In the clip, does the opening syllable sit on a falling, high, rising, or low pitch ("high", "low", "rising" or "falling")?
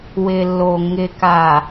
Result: low